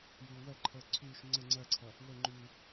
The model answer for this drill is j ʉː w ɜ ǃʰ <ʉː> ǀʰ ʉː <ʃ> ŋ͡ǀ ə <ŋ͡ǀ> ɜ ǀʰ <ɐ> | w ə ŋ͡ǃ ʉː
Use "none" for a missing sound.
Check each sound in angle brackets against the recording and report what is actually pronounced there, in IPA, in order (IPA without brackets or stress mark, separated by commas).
əː, ʃ, ŋ͡ǀ, ɐ